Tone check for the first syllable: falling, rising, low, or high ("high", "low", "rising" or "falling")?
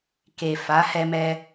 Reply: low